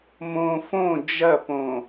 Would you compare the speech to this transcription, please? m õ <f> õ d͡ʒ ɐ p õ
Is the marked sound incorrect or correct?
correct